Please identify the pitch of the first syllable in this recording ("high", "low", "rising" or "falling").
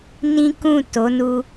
high